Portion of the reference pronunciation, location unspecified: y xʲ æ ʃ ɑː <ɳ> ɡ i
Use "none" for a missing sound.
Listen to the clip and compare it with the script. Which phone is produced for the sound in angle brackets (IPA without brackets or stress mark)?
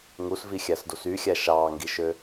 ŋ